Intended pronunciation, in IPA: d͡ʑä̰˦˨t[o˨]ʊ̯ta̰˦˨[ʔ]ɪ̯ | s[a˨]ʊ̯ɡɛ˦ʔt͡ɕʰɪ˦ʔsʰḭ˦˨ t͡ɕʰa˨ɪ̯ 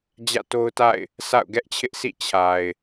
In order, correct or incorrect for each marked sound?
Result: incorrect: o˦, incorrect: none, incorrect: a̰˦˨

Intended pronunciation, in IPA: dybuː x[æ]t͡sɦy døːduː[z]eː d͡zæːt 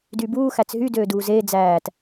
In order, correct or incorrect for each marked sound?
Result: correct, correct

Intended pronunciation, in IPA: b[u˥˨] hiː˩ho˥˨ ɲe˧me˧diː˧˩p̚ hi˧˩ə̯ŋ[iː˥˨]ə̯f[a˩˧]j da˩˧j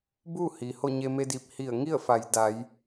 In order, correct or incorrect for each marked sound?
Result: correct, incorrect: i˥˨, correct

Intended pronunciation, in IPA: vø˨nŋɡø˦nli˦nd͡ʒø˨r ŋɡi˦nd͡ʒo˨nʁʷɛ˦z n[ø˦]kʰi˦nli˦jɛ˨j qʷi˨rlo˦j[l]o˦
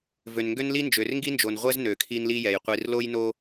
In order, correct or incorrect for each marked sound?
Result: incorrect: ø˨, incorrect: n

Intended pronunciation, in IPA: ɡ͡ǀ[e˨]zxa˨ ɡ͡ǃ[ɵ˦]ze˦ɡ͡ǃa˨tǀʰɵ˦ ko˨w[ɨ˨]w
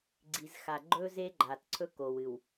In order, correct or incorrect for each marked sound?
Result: incorrect: i˨, correct, correct

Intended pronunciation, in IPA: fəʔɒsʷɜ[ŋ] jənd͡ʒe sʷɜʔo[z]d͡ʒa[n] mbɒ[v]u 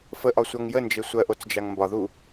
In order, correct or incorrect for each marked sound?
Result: correct, incorrect: t͡s, incorrect: ŋ, incorrect: ð

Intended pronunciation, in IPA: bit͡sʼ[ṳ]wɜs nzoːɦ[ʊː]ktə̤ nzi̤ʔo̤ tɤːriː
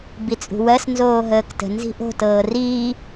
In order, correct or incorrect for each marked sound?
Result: correct, incorrect: əː

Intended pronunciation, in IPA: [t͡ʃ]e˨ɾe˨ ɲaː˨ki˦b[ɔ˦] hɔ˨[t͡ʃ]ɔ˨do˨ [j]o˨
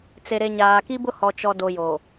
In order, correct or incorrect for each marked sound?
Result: incorrect: t͡s, incorrect: ʊ˦, correct, correct

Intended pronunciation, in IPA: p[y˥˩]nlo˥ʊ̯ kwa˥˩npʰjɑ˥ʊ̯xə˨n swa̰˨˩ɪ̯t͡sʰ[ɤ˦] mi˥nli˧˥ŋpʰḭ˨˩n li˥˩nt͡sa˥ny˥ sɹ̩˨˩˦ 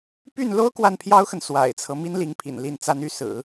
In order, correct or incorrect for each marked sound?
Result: correct, correct

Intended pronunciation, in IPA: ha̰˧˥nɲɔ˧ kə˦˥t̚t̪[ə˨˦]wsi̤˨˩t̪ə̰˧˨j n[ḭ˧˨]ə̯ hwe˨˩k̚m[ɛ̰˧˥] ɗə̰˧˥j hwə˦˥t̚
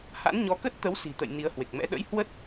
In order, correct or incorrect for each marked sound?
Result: correct, incorrect: i˨˦, correct

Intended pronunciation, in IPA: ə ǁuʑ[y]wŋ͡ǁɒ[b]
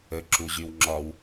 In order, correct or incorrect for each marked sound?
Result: correct, incorrect: w

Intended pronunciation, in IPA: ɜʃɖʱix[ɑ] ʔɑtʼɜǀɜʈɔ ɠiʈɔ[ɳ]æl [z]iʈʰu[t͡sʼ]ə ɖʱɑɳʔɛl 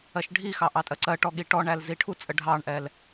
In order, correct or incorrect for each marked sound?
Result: correct, correct, correct, correct

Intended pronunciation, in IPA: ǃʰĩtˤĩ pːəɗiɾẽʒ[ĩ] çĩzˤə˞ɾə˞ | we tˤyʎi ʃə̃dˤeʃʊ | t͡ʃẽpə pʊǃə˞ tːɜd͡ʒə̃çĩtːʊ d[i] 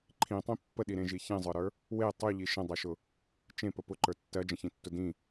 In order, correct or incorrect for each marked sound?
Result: incorrect: i, incorrect: ĩ

